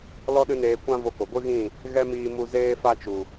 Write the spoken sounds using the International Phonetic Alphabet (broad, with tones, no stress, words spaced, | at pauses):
lɔ˦ɗɨ˦neː˧ kʷã˦ vo˧ko˨ ɡʷɨ˦ɣĩ˦˨ | ɣɛ˦miː˧ mu˧ zeː˦fa˦t͡ʃu˨